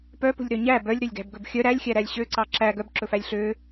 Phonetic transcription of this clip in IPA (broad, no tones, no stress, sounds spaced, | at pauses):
p œ p ṳ lʲ ɾ œ ɲ æ b œ lʲ ɾ ø lʲ ɡ æ̤ b ɡ ɵ b xʲ œ ɾ æ lʲ xʲ æ ɾ æ lʲ ɕ ø ǀ ɑ ǁ æ ɡ œ b ǁ ɵ f æ lʲ ɬ ø